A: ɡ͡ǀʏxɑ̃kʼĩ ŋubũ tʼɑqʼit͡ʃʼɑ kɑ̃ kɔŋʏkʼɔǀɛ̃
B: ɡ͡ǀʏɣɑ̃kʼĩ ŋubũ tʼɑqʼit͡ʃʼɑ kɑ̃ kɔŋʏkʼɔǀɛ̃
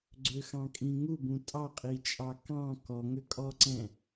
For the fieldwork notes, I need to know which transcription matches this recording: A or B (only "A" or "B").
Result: A